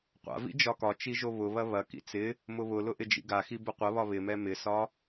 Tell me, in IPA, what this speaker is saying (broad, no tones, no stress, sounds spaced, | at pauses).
qʷ a̰ v ḭ d͡ʒ ɒ k ɒ t͡ʃ i ʒ o β ʊ β ɐ β ɐ k ḭ t͡s ɪ | m ʊ β ʊ l ʊ ʔ ɪ d͡ʒ ḭ ɡ a x i b ʊ qʷ ɐ β ɒ β ɪ m ɛ m ɪ s ɒ